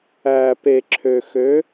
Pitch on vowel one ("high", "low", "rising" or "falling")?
low